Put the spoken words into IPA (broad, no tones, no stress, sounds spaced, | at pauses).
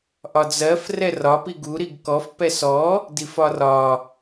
ʔ ɒ d͡z ɜ f r ɛ r ɒ p i ɡ u ɾ i ɡ k ɔ f p ɛ s ɔ | d i f ɒ r ɒ